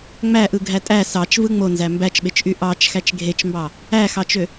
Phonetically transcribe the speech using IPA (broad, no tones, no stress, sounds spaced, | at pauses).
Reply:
ŋ͡m æ ʔ ɯ ɡʱ æ tʼ æ s ɑ t͡ʃ v ɯ ŋ͡m o n z æ m b æ t͡ʃ ɓ e t͡ʃ ʔ y ʔ ɑ t͡ʃ x æ t͡ʃ ɡʱ e t͡ʃ m b ɑ | æ x ɑ t͡ʃ ø